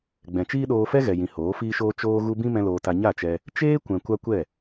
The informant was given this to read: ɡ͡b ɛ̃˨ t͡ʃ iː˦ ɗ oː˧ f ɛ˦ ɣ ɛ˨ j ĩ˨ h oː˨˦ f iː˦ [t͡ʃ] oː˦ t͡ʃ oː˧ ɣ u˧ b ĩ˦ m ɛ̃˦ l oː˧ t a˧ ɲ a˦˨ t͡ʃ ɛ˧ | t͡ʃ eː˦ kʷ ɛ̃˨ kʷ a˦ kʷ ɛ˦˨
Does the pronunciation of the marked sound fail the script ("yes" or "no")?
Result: yes